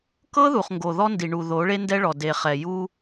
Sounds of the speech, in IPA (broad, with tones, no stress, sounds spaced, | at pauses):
k ɤ˦ ð u˨ χ ŋ ɡ o˨ ð ɔ˦ n d i˨ ɳ u˨ ð o˨˦ ɭ e˦ n d ɛ˦ ɭ ɔ˨ d e˨ χ ɛ˨ j u˦